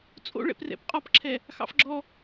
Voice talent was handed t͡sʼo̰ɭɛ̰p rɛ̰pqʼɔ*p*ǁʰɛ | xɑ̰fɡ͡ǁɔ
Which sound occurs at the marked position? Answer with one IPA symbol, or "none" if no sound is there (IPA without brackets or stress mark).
p